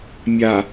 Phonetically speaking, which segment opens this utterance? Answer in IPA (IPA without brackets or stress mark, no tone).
mʲ